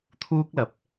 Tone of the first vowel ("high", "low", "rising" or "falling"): high